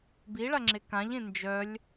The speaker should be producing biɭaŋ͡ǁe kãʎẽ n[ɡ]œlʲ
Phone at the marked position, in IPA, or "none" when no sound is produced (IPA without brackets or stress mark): d͡ʒ